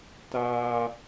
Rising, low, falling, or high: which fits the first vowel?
high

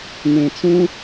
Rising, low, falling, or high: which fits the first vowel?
low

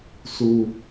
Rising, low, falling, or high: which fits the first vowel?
high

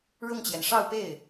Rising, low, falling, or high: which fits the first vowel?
falling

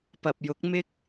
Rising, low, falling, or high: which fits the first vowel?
low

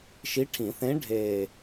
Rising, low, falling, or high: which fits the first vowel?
rising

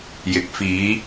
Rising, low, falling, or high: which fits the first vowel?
low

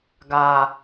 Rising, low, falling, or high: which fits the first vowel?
low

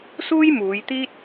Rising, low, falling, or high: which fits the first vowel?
high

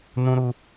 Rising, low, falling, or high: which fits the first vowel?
high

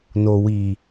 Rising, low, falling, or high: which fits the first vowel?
low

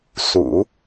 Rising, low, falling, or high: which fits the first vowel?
low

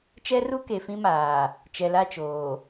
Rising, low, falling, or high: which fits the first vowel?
high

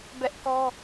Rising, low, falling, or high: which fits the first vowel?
high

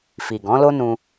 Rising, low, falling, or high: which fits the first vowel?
low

